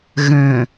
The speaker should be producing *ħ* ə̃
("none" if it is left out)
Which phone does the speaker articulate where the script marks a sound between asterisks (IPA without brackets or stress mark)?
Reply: ɣ